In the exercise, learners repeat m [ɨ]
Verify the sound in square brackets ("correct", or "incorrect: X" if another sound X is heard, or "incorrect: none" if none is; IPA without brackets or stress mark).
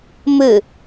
correct